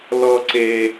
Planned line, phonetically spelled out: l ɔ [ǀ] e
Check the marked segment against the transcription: correct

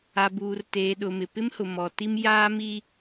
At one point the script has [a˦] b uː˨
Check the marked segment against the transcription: incorrect: a˨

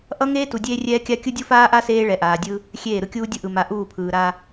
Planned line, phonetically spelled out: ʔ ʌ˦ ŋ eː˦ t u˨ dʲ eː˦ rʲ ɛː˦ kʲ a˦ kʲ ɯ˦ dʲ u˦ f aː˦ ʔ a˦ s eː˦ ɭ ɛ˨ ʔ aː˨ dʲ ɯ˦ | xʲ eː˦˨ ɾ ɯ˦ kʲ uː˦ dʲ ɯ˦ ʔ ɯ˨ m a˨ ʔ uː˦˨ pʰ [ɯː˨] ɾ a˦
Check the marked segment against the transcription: correct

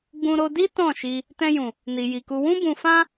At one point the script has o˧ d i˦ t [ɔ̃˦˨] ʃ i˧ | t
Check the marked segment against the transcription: correct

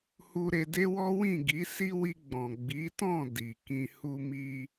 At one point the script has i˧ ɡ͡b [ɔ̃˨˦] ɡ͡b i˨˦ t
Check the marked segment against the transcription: incorrect: ɔ̃˨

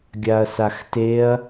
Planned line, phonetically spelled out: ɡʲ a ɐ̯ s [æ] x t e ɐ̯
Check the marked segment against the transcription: incorrect: a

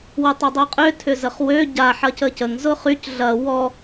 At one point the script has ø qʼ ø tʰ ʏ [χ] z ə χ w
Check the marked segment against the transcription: incorrect: none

